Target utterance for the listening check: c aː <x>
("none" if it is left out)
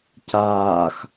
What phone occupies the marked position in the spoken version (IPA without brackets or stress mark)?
x